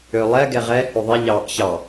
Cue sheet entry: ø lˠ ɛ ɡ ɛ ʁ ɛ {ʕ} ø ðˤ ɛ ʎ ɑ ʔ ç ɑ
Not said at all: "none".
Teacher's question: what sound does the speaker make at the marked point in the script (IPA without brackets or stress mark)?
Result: h